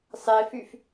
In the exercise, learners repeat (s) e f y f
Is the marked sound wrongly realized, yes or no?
yes